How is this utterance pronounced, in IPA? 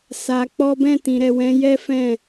s a˧ k͡p ɔ˦ b ɛ̃˦˨ t ĩ˨ ɾ ɛ˨ w ɛ̃˨˦ j ɛ˦ f ɛ̃˦˨

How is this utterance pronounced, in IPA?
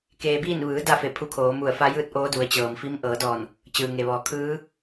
k eː˧ b iː˥˨ n ʋ ɯː˩˧ d a˥˨ f e˧˩ pʰ u˧ kʰ oː˩˧ m u˧˩ ə̯ f a˧˥ j ɯː˥˨ t̚ ʔ oː˧˥ d u˩˧ ə̯ t͡ɕ ɤː˩ m f i˧˥ m ʔ ɤː˩˧ d ɔː˧˩ n | t͡ɕ ɯː˩ ŋ e˩ ʋ ɔː˩˧ kʰ ɯː˧˥

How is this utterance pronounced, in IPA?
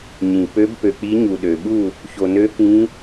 ɲ ĩ˩ p ø˨˦ b p ø˩ k͡p i˨˦ ɲ u˩ ɗ ø˩ ɓ u˥˨ | ç o˩ n ø˨˦ k ĩ˨˦

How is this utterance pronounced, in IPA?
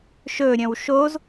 ʃ ɵ ɾʲ œ̃ w ʃ o z

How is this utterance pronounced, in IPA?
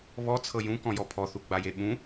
β ɔ t͡sʰ ɤ j ũ k ɔ̃ j ɔ pʰ ɔ θ u ɡ͡b a j e ɓ ũ

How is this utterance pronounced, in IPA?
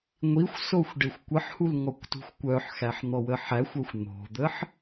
ŋʷ i xʷ s o xʷ ɖ e xʷ kʷ ə ħ h u l ŋ ɔ kʷ t ṳ xʷ kʷ œ ħ x æ ħ n̪ ɔ w ə ħ æ xʷ œ xʷ n̪ o̤ d̪ ə ħ

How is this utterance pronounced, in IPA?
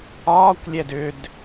ɒː kʷ lʲ ɛ d ʏ d

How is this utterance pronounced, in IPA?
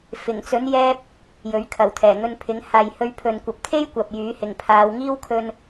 f ɪ˨˩ ŋ t͡s ɵ˨˥ n j ɛː˥ p̚ | j ɵ˨˥ ɥ kʰ ɐ˨˩ w t̪ʰ ɛː˨˩ ŋ ɵ˧ n pʰ ɪ˨˧ ŋ h aː˨ j h ɵ˧ ɥ pʰ ɵ˨ n kʷ ɐ˨ p̚ t̪ʰ e˥ j kʷ ɐ˨ p̚ j yː˨˥ h ɪ˨ ŋ pʰ aː˨˧ w ŋ iː˥ w kʰ ɵ˧ n

